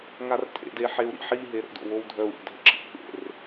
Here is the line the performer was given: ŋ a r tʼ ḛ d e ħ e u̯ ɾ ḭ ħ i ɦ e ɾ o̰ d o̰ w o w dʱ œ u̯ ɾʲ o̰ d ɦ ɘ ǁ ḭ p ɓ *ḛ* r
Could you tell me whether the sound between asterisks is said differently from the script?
no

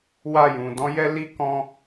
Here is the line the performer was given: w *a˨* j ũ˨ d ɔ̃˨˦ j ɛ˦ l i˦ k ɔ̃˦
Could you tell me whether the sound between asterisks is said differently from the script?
yes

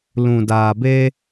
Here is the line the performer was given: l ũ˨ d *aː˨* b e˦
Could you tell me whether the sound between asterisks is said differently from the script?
no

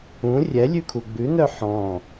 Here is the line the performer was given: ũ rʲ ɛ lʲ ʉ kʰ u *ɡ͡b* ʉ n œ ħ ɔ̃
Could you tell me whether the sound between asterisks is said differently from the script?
no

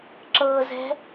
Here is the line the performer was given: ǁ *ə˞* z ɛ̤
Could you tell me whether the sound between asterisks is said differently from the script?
yes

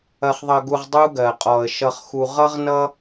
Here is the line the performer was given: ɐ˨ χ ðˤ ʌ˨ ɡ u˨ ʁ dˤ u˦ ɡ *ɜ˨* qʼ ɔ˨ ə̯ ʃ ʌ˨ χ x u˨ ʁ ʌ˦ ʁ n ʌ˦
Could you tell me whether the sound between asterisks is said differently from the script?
no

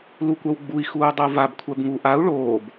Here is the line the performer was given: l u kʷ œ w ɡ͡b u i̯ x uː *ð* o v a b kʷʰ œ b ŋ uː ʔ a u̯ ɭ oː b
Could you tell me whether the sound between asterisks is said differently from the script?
yes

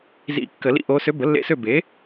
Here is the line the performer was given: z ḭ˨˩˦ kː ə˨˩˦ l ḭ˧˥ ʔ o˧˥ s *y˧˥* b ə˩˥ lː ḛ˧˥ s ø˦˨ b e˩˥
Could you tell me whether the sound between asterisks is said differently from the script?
yes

